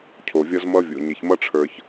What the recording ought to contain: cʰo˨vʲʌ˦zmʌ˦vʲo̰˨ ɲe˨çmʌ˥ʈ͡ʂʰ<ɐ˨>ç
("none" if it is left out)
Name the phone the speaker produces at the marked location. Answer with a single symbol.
ə˞˨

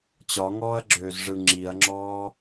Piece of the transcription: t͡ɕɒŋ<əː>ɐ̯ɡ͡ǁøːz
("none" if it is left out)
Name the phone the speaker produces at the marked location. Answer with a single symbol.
ɔː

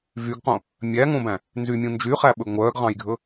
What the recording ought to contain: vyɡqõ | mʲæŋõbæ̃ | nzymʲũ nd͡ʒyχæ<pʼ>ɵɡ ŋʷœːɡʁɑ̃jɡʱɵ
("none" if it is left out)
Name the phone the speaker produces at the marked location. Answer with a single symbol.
ɓ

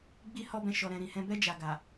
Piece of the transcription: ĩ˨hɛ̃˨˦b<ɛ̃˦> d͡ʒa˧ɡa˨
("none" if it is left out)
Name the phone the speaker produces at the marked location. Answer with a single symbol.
ɛ˦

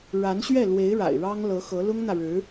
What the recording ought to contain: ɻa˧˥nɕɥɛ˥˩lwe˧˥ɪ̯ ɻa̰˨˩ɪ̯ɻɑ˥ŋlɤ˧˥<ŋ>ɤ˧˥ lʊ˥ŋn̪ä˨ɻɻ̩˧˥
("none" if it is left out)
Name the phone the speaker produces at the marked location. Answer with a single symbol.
x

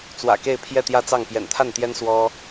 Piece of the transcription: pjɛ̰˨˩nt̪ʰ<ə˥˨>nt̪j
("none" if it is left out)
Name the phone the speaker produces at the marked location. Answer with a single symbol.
a˥˨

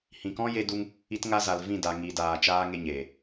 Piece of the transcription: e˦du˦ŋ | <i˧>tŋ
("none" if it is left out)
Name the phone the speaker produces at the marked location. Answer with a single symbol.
i˧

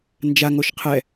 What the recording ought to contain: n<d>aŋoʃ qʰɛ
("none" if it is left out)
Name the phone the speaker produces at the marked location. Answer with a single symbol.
d͡ʒ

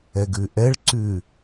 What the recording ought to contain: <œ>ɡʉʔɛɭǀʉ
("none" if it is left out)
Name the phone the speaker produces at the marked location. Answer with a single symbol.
ɛ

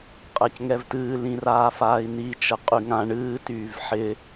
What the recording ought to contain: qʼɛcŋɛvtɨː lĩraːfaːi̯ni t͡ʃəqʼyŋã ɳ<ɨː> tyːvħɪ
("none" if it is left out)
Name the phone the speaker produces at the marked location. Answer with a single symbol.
ɨː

